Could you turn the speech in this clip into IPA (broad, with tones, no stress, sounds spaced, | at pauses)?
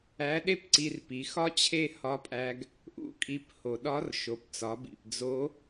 æ˧˥ ɗ e˥ p ǀ i˧ r p i˩˧ x ɒ˥ t͡ɕʰ e˥ h ɒ˧˥ pʼ æ˧ ɡ | ʔ ṵ˧ kʼ i˧ p h o˩ ɗ ɒ˧˥ r ʃ o˩˧ p t͡s ɒ˩˧ b ḭ˩ p d͡z o˧˥